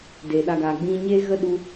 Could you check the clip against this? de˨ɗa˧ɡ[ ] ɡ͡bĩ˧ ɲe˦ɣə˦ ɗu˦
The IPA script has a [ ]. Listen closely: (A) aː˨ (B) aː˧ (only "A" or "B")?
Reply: A